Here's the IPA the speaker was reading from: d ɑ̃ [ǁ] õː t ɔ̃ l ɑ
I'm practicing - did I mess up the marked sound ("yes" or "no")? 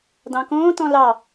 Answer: yes